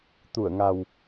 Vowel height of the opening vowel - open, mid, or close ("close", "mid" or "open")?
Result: close